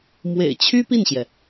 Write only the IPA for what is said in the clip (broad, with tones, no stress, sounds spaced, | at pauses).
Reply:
m w ḛ˨˩ ɪ̯ t͡ɕʰ y˥ p i˥˩ n ɕ j ɛ˩